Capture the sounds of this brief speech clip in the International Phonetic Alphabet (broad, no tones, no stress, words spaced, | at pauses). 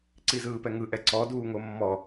ǀizɯːpɛŋɯ ʔɛǀɔ duːŋomːɔ